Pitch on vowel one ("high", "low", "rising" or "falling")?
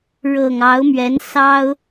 low